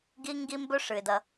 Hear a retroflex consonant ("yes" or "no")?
yes